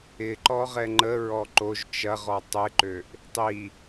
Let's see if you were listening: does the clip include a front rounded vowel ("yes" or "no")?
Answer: yes